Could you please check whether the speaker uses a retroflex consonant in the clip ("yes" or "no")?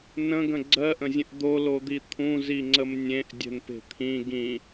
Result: no